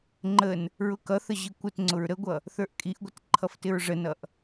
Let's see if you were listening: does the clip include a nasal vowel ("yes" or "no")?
no